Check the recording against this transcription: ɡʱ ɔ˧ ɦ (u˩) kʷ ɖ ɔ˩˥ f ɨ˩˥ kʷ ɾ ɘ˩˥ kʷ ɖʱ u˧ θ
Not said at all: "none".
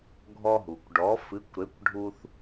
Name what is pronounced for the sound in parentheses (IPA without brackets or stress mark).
u˩